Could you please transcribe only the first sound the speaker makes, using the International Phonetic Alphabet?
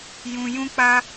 j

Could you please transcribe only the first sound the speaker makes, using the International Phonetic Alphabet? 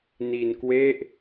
n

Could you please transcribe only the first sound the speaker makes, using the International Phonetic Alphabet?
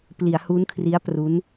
p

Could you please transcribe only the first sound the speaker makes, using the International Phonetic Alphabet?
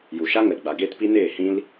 j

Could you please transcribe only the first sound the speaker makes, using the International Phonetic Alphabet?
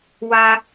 w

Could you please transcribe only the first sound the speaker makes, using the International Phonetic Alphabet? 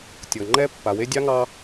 tʲ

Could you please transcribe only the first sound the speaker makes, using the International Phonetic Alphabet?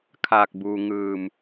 kʰ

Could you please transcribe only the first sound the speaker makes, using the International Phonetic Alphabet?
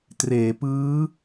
t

